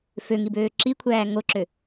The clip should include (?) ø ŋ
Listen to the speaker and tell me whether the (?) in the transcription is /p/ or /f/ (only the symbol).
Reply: f